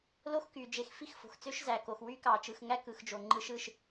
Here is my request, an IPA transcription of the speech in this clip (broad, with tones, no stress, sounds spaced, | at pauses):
l o˦ x k y˨ d͡ʒ e˨ x f i˦ x f o̤˨ x t͡s ø˦ ʃ z æ˨ k o˨ x w y˦ k ɑ˨ t͡ʃ ɯ˨ x ŋ æ˦ k ɯ˨ x d͡ʒ o˨ ŋ͡ǃ ɯ˦ ʃ ɯ˦ ʃ